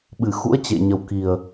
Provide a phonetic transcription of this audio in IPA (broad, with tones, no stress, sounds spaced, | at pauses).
ɓ ɨ˧˩ x ṵ˧˥ ə̯ t͡ɕ ḛ˧˨ ɲ ə˨˩ w k i˨˩ ə̯